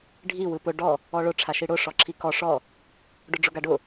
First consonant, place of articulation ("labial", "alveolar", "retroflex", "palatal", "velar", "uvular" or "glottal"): retroflex